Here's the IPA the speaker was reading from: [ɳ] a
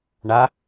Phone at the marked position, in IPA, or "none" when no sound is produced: ɳ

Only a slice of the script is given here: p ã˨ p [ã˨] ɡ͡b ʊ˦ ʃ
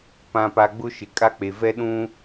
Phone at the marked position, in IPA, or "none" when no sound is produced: a˨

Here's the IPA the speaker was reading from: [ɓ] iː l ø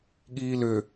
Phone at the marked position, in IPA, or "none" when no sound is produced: ɠ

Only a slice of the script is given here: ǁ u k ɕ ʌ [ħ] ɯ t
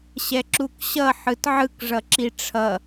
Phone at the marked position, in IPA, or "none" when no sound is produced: ħ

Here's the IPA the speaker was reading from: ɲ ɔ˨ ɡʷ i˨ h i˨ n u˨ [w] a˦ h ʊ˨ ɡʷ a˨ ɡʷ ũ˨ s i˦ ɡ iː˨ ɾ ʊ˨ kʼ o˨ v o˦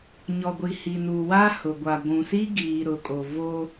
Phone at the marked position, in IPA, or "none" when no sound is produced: w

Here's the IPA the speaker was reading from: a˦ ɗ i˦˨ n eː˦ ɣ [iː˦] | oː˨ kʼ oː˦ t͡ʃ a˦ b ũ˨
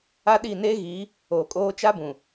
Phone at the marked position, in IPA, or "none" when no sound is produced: iː˨˦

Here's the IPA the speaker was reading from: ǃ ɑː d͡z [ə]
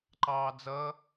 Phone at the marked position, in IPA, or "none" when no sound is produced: ʌ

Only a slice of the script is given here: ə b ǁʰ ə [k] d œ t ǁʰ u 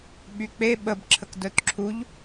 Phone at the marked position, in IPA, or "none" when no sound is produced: k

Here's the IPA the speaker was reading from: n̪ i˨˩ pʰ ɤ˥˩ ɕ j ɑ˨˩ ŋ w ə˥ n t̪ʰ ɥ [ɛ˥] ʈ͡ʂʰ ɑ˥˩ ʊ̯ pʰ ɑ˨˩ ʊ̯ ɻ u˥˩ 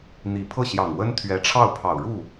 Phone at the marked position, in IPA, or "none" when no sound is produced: ɛ˧˥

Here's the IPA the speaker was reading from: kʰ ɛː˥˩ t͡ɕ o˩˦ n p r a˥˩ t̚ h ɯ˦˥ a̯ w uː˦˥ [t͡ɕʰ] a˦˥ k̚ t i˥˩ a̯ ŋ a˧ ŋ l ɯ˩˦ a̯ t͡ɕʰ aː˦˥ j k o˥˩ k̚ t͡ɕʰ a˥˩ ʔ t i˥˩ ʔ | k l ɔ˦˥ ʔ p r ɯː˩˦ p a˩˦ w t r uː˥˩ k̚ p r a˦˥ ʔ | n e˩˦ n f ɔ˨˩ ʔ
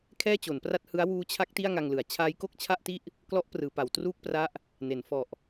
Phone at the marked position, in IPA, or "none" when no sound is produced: t͡ɕʰ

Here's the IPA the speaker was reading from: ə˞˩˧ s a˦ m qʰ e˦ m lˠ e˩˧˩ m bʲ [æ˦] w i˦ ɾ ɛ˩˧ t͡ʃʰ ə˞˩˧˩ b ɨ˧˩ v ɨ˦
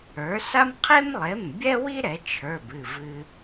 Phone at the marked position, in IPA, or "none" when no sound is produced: ɛ˦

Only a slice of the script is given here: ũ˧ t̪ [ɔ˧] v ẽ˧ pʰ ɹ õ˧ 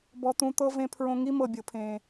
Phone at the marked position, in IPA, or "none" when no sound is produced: ɤ˧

